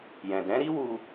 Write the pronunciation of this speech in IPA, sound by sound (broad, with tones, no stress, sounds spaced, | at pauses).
j ɛ̃˨ d ɛ̃˨˦ ɾ i˦ w u˧